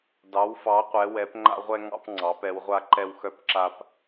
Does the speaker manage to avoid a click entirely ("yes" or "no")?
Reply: no